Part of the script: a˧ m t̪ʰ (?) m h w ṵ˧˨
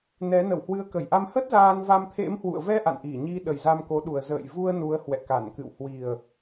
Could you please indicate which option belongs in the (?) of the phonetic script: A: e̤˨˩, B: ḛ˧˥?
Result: B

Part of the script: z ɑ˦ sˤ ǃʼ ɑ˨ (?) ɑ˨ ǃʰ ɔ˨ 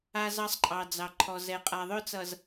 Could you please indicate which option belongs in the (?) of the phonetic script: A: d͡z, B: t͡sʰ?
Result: A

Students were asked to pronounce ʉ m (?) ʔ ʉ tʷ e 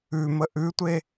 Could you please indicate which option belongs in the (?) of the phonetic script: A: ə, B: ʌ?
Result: A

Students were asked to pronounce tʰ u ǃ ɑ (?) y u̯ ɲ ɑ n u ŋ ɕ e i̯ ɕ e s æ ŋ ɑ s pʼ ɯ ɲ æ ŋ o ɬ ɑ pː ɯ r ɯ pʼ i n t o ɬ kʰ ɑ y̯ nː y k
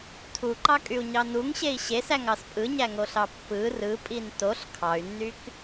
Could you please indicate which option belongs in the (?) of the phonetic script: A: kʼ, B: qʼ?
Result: A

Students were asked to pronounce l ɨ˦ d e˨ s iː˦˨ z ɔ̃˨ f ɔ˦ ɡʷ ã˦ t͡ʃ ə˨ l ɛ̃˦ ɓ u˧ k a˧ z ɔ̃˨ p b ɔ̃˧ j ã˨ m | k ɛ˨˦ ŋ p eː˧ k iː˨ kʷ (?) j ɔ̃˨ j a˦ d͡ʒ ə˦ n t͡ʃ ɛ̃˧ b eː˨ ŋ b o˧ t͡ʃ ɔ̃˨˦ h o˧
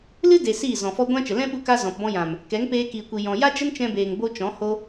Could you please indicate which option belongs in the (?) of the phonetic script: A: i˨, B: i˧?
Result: A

